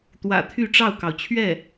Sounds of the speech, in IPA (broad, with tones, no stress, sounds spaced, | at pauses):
t̪ w ä̰˨˩ t̪ʰ y˥˧ ʈ͡ʂ ɑ˥˩ ʊ̯ k ɑ˩ ʊ̯ t͡ɕʰ ɥ ɛ˥˩